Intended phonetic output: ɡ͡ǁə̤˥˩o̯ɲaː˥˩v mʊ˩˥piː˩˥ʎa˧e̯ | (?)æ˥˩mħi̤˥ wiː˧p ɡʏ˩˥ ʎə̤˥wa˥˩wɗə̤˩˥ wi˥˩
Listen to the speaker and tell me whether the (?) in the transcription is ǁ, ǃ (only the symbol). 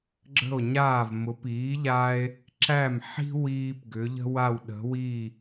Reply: ǁ